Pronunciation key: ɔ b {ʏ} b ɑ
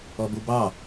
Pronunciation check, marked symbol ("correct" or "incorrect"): incorrect